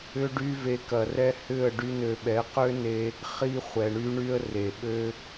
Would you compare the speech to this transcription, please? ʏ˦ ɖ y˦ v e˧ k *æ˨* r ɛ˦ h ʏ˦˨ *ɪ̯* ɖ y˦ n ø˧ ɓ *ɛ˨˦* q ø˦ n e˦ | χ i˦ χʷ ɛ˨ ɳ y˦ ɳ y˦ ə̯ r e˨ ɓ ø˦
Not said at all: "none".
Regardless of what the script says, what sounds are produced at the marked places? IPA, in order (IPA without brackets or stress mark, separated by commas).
ɐ˨, ə̯, ɛ˨˦